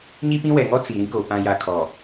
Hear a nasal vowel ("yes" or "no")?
yes